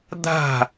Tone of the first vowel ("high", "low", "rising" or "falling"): falling